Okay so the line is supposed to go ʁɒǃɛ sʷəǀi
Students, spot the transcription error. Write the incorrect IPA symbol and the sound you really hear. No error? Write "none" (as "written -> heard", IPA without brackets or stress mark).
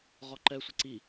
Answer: none